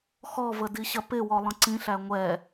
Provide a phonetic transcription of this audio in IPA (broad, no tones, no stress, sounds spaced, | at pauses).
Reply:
x ɔ v ə d i ɕ ɐ p ɪ w ɔ lˠ ə̃ ǀ ĩ ɬ æ ŋʷ ɛ